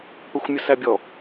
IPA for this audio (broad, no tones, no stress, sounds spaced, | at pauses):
p ɛ xʷ mʲ ʊ s æ bʲ ɔ